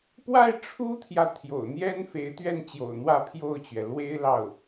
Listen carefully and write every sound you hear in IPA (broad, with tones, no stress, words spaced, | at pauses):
pwa˥˩ɪ̯ ʈ͡ʂʰu˥t̪ʰjä˨ t̪ʰjo̰˨˩ʊ̯n̪jɛ˥n fe˧˥ɪ̯t̪ɥɛ˥˩nt͡ɕjo̰˨˩ʊ̯ n̪wä˥˧pʰjo˥˩ʊ̯t͡ɕɥɛ˩ lwe˥ɪ̯lɑ˥˩ʊ̯